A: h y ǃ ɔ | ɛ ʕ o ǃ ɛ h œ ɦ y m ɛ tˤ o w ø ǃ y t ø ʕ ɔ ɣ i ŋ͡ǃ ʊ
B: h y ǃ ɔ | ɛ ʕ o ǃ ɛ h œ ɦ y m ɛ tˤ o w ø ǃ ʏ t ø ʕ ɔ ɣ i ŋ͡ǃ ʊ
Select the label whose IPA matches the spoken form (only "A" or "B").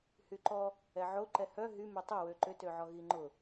B